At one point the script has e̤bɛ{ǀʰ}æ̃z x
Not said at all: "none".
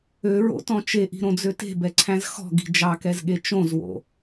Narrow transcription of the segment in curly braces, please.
ǀʰ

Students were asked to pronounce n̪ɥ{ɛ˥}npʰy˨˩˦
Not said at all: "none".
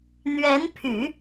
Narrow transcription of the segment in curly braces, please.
ɛ˧˥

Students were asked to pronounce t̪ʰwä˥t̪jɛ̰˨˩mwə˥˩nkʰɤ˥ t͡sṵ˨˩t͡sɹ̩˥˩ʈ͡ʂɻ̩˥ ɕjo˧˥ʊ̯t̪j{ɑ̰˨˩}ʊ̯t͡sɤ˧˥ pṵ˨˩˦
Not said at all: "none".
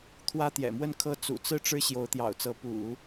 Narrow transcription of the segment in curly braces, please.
ɑ̰˨˩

